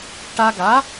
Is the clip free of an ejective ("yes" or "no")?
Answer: yes